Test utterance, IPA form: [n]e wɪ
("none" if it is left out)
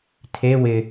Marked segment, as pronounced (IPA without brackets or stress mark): tʰ